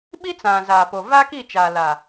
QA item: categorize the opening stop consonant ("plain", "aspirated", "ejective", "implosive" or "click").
implosive